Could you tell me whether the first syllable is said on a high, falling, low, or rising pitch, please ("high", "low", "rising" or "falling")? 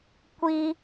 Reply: high